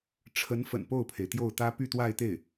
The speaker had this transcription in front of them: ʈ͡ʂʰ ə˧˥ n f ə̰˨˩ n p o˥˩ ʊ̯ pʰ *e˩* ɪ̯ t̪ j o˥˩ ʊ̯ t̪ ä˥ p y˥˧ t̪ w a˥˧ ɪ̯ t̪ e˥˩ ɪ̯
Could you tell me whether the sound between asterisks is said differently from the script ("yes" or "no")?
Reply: no